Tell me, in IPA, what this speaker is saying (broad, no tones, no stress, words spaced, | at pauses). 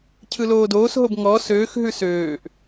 cʰɯloːdoːsɦob ŋɔ søːxɦʉ søːʔ